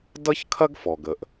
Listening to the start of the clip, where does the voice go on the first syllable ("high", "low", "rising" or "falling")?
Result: high